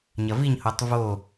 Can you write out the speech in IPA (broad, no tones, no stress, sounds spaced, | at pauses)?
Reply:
ɲ ɐ v i ɲ h o tˤ v o